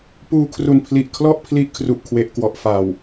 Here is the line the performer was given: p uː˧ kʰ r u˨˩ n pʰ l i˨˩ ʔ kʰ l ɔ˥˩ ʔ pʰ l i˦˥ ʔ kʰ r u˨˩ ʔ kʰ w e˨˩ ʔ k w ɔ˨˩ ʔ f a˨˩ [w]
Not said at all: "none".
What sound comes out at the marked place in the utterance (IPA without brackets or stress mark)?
w